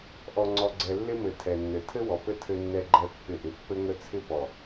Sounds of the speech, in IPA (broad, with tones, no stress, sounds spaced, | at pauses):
ʔ ɔ˨ ŋ͡ǀ ɔ˨ ɡ͡ǀ ɛ˨ lː ɪ˦ m ɘ˨ tʰ ɛ˨ nː ɘ˨ tʰ ɘ˦ w ɔ˨ p ɘ˦ tʰ ɘ˦ nː ɛ˦ ɡ͡ǃ ɛ˦ pː ɪ˦˨ ʔ ɪ˨ pː ɘ˦ ŋ ə˦ t͡sʰ ɪ˦ p ɔ˨